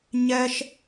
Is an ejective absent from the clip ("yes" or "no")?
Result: yes